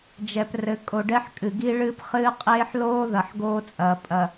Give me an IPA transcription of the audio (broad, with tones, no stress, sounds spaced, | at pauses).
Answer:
d͡ʒ ɛ˨ p r ɘ˨ kʼ o˨ ɖ ɛ˦ ħ kʼ ɨ˨ ɡ i˦ ɭ ɨː˦ p χ ɨː˦ qʼ eː˦ ħ l oː˦ ð ɐ˨ ħ ɡ oː˦ t͡sʼ ɐː˨ pʼ ɐ˨